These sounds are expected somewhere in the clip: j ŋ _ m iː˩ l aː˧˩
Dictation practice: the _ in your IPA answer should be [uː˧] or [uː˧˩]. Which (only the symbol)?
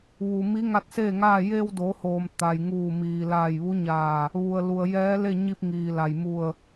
uː˧˩